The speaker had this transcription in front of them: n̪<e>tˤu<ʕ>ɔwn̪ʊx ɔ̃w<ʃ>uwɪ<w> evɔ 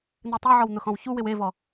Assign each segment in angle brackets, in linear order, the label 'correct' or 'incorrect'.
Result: correct, correct, incorrect: ç, correct

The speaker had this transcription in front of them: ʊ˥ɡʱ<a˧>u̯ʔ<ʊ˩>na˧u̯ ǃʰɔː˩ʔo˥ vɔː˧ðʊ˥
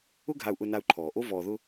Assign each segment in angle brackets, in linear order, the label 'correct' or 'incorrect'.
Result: correct, incorrect: ʊ˧

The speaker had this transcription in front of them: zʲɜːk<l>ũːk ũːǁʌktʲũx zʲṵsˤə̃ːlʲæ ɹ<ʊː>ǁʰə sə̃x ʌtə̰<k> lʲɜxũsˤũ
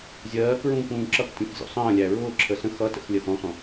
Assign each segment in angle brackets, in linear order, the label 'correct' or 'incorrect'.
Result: incorrect: ɹ, correct, incorrect: x

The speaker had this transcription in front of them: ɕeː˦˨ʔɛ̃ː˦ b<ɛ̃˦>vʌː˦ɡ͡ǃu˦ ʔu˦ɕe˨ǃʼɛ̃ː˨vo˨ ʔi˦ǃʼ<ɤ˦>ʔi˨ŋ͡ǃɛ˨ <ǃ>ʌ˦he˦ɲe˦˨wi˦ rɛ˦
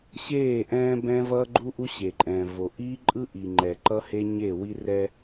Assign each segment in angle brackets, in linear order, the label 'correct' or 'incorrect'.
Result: correct, incorrect: ɯ˦, correct

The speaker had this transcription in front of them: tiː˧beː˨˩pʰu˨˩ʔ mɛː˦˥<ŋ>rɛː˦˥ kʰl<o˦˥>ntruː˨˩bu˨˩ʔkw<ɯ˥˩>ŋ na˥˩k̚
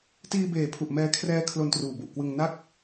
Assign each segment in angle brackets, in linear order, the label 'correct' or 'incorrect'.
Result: incorrect: kʰ, incorrect: o˧, incorrect: ɯ˧

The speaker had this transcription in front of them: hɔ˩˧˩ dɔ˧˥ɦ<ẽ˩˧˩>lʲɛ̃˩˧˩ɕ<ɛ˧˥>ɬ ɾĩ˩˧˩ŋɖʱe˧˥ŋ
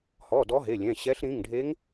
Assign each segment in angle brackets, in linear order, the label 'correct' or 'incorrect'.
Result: incorrect: e˩˧˩, correct

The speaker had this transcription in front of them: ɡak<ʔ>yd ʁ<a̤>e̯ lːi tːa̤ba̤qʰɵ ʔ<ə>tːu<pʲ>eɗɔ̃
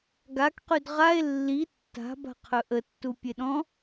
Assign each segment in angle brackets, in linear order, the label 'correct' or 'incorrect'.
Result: incorrect: q, incorrect: a, correct, correct

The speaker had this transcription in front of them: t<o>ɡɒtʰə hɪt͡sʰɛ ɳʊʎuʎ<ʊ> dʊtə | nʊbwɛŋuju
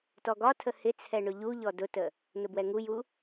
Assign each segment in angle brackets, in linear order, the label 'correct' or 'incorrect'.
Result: incorrect: ɔ, incorrect: ɔ

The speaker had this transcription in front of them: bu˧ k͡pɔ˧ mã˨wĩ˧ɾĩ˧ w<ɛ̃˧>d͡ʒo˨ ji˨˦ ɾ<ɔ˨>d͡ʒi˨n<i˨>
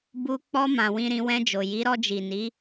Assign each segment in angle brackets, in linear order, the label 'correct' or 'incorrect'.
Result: correct, incorrect: ɔ˧, incorrect: i˨˦

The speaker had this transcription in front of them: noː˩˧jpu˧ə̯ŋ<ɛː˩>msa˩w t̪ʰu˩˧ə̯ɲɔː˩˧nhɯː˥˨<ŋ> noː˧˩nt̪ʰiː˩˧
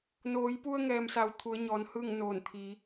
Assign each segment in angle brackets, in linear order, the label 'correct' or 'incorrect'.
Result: correct, correct

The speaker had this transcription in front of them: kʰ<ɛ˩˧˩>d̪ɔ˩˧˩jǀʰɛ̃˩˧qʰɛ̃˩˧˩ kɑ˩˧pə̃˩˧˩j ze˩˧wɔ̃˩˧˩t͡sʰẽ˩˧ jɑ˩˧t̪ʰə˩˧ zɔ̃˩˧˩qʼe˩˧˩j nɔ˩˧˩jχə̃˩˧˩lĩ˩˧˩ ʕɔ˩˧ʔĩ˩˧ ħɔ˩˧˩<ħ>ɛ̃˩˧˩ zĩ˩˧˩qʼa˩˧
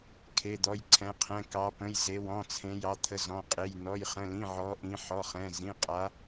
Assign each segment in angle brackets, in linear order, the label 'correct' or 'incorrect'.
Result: incorrect: e˩˧˩, incorrect: χ

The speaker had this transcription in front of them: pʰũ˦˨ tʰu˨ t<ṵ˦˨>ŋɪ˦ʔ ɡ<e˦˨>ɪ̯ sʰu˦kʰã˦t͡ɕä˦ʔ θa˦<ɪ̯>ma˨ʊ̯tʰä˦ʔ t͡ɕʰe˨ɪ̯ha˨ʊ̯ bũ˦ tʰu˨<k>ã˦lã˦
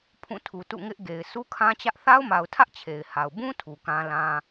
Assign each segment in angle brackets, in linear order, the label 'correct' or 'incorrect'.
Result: correct, incorrect: e˨, incorrect: ʊ̯, correct

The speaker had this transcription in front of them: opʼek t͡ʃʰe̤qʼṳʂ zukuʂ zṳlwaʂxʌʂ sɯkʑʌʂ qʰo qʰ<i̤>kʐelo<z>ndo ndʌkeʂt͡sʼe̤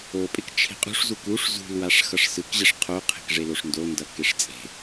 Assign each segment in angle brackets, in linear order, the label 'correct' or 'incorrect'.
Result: incorrect: e̤, incorrect: ʂ

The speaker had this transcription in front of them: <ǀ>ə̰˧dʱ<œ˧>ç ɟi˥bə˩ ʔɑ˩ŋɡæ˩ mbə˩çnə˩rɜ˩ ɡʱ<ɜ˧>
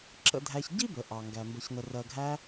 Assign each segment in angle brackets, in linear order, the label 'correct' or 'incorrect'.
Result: incorrect: ǁ, incorrect: æ˧, incorrect: æ˧

